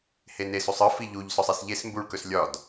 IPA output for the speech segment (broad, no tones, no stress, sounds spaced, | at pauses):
h e n e s u sˤ ɯ f i ʎ u ʎ s ɔ sˤ i s ʎ e s m b u ɭ k ɵ s lʲ ɒ d